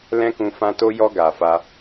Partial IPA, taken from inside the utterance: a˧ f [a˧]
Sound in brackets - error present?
yes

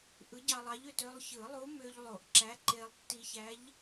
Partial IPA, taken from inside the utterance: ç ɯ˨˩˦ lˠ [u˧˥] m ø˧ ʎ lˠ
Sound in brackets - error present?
no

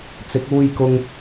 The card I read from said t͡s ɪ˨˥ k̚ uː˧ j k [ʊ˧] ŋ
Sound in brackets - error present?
no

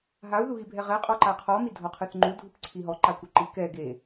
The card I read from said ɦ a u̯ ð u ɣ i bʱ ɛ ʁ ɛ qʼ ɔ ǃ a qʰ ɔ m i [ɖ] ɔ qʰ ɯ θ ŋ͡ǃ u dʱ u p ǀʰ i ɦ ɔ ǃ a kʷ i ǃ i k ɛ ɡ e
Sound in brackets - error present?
yes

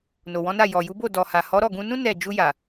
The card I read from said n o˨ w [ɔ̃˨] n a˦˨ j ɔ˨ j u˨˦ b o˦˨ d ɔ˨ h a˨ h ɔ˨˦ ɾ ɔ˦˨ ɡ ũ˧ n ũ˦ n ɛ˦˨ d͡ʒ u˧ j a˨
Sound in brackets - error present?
yes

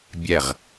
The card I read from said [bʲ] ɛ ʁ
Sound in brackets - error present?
no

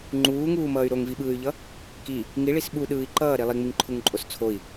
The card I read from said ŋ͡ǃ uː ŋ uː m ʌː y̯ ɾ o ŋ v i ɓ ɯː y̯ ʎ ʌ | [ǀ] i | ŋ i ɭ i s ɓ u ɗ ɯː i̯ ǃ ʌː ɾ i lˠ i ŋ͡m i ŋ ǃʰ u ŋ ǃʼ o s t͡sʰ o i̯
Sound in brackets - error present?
yes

